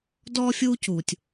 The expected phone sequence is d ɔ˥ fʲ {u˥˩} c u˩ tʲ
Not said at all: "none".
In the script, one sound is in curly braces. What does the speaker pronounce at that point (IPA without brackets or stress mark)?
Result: u˥